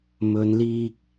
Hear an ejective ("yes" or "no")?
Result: no